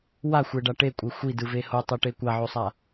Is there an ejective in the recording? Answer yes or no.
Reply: yes